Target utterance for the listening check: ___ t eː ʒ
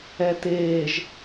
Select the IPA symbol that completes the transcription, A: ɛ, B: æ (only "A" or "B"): A